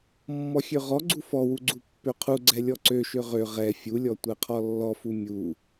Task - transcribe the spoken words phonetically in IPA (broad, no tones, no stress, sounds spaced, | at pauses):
mː ɔ xʲ ø ʁ ɔ ɡ͡ǀ u f ɔ w u ɡ͡ǀ u pː ø qʰ u ɡ͡ǀ ɛ lʲ ɔ ǀ ø ʃ ø ʁ ø ʁ ɛ fʲ u lʲ ɔ tʷ ɛ qʰ ɔ lː ɔ f u mʲ u